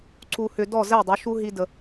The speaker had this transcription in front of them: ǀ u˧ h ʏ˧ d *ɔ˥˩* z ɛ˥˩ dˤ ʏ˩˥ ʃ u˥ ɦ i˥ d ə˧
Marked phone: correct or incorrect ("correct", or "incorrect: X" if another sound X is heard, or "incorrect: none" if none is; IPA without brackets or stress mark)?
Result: correct